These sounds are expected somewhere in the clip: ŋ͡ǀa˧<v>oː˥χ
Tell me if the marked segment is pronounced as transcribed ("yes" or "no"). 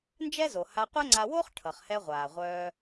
no